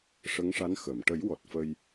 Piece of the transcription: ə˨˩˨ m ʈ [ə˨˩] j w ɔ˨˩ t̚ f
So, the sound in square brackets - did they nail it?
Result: no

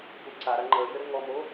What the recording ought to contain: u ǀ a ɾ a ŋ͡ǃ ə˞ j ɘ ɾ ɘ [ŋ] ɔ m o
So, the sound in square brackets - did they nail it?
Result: yes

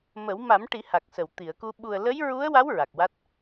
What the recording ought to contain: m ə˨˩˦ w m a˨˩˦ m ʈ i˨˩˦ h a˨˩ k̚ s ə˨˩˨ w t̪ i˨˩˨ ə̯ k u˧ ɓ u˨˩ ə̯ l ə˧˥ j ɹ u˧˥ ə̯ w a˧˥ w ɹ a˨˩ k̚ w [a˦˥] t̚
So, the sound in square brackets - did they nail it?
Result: yes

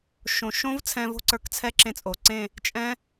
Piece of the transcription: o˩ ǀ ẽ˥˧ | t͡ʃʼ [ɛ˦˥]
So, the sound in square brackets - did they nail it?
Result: no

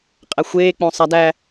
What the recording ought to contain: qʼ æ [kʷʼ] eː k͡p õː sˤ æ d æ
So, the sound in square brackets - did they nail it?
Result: no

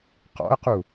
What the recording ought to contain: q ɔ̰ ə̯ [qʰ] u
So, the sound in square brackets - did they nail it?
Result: no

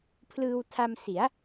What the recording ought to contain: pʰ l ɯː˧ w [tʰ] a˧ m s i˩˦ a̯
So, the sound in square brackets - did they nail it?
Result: yes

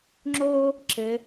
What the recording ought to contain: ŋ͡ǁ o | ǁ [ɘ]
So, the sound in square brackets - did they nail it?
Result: yes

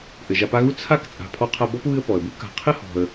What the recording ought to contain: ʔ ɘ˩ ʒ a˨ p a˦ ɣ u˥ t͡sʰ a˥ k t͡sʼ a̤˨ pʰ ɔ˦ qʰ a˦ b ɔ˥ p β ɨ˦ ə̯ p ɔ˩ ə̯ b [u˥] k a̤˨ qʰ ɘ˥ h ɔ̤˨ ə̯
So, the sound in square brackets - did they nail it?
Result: yes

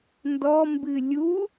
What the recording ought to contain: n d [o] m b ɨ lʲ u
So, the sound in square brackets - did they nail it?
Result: no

